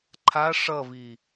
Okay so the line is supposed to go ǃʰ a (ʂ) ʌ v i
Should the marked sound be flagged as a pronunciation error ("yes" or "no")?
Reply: no